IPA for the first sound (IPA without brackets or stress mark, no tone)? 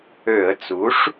ø